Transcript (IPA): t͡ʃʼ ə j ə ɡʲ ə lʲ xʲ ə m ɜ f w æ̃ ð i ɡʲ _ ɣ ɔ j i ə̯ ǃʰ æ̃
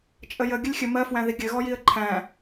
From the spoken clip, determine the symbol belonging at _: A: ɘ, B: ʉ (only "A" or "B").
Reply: A